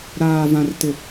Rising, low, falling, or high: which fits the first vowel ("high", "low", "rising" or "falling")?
low